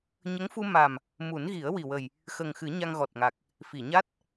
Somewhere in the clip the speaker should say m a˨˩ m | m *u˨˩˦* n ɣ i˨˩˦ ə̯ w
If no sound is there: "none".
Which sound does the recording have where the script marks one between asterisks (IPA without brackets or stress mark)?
u˨˩˦